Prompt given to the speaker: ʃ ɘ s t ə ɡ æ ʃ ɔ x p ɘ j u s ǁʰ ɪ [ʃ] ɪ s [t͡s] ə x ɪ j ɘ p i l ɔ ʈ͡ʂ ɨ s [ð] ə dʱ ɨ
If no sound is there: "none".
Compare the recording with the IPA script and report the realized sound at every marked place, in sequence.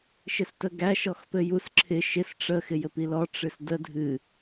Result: ʃ, ʈ͡ʂ, d

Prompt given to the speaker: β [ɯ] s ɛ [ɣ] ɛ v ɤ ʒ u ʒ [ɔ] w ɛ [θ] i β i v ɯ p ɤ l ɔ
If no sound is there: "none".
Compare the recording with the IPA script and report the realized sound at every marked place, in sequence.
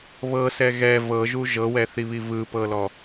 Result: ɤ, ɣ, ɤ, θ

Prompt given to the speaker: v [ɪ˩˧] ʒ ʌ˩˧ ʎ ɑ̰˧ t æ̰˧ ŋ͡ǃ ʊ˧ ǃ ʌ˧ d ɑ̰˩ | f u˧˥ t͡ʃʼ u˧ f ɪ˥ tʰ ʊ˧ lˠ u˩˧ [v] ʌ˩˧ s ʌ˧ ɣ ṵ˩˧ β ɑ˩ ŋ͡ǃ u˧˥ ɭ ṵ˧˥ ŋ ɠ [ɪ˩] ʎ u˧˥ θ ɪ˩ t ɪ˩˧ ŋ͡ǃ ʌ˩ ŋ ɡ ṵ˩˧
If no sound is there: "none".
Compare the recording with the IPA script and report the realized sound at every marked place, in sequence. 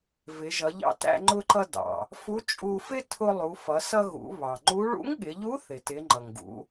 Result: ɪ˩˧, f, ɪ˩˧

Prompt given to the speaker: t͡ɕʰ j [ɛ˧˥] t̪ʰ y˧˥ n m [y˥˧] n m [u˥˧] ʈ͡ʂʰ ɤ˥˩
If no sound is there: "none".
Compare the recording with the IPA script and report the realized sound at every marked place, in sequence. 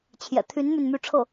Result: ɛ̰˨˩, y˥˧, y˥˧

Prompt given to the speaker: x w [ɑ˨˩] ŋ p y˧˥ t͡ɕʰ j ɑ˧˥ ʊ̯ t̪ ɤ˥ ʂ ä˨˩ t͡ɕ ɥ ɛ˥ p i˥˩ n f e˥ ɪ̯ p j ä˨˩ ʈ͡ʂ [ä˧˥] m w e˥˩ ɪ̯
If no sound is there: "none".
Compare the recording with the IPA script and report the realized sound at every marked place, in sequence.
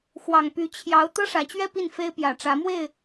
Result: ɑ˨˩, ä˧˥

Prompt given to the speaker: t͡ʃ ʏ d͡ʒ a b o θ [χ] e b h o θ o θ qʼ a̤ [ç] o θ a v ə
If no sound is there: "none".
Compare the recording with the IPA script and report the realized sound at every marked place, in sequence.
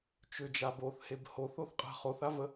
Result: h, χ

